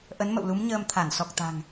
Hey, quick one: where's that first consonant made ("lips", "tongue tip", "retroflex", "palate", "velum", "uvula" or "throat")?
throat